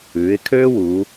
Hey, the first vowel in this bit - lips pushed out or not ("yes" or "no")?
yes